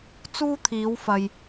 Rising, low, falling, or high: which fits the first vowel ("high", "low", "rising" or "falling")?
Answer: high